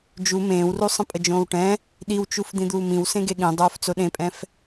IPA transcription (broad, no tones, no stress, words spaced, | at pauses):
d͡ʒu mẽːwru sˤə̃pʼəd͡ʒõːwʈɛ̃ | ɗiwt͡ʃuf d̪ĩd̪uːmĩw sẽɡeɠĩ dˤoːft͡soɗẽpʼɛ̃f